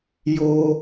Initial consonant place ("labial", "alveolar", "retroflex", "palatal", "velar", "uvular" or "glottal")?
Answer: palatal